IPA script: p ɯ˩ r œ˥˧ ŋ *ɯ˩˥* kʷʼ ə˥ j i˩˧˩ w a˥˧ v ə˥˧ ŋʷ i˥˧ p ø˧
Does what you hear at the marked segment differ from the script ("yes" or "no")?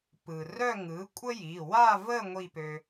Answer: no